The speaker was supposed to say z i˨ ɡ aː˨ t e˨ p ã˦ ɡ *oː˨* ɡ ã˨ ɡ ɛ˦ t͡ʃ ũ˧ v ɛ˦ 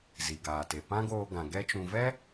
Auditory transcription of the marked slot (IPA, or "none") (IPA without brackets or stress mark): oː˧